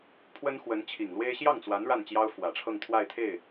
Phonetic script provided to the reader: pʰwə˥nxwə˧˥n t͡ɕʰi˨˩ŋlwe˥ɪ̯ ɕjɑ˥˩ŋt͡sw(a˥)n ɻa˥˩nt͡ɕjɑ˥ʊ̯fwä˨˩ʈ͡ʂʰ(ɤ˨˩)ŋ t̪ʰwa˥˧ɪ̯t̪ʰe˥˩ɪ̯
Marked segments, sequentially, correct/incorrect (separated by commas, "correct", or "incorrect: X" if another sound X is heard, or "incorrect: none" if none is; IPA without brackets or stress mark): incorrect: a˧˥, incorrect: ɤ˥˧